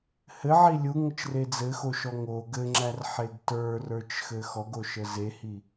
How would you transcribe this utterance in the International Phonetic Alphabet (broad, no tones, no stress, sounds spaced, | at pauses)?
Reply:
h ɘ ʕ i lʲ u ŋ ə t͡ʃ r e d͡z ɘ x o ʃ ɔ ŋ o ɡ ɘ ŋ͡ǁ æ r ħ e ɡ t ə˞ r ə˞ t͡ʃ x ɘ x ɔ ɡ o ʃ ə z e h i